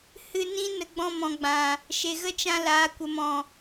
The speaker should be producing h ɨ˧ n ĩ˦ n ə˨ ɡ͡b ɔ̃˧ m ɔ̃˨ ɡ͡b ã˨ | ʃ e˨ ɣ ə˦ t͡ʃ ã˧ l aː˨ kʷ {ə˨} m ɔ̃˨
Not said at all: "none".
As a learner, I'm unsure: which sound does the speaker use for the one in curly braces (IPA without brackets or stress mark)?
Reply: ə˨